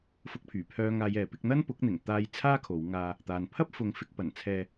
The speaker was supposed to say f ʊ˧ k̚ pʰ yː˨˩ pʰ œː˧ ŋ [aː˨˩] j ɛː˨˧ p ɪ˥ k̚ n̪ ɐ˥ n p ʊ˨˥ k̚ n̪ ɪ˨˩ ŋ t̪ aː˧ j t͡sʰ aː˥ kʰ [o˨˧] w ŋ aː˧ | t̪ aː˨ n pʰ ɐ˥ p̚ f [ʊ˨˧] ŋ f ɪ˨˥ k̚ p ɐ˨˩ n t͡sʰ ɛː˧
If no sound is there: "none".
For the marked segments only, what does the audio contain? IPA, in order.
aː˧, o˨˧, ʊ˨˧

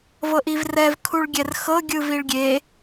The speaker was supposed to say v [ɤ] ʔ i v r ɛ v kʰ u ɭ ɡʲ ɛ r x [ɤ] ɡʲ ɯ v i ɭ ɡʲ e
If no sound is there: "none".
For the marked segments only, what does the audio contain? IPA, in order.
ɤ, ɤ

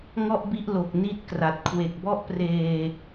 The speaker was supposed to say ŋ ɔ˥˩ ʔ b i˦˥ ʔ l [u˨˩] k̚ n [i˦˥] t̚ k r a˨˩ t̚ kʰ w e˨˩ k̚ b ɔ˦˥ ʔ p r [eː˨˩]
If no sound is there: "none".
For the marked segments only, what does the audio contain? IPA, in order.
o˨˩, i˦˥, eː˧

